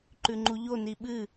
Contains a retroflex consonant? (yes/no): no